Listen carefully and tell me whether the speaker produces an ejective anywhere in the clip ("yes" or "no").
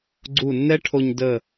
no